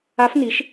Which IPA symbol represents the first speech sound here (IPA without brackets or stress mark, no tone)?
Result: a